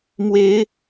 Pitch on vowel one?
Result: rising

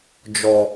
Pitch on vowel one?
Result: low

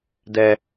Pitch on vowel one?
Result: high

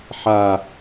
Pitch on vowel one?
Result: low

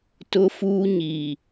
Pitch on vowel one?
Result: high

